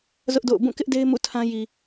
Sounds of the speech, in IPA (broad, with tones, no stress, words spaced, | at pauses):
zʊ˦ʔdo̰˦˨ʊ̯ bũ˦˨kɪ˦ʔde˦ɪ̯ mṵ˦˨tʰã˦ ji˨